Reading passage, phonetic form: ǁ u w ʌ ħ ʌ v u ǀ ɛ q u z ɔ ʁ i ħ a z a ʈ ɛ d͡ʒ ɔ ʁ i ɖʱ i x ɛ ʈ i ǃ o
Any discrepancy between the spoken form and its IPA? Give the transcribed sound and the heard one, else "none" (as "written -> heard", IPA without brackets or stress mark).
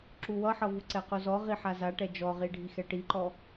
o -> ɔ